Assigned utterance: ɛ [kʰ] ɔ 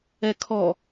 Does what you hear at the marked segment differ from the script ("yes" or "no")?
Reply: no